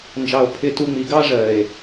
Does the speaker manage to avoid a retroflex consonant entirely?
no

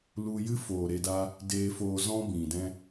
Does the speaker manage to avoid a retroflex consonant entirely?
yes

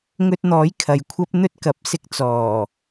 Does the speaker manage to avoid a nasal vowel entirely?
yes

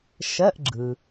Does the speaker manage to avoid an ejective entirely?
yes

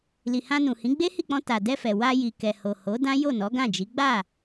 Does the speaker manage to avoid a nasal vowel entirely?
no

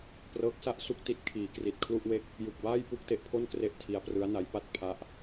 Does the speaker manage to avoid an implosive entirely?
yes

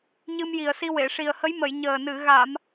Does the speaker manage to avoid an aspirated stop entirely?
yes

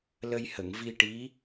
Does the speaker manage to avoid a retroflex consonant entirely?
no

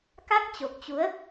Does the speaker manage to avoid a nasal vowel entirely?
yes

